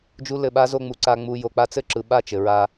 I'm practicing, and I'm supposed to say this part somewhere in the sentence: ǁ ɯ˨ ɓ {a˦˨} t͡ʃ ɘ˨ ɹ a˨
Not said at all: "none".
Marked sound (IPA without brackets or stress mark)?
a˦˨